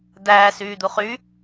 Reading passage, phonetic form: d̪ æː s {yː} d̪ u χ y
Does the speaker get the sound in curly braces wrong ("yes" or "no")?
no